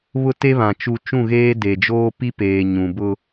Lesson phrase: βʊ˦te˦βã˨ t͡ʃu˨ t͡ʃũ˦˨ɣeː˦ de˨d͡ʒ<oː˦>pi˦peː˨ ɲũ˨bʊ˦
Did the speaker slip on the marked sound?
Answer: no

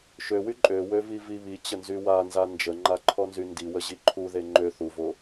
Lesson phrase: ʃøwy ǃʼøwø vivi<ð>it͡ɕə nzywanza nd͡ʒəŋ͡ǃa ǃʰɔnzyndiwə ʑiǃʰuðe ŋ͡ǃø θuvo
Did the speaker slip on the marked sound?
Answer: yes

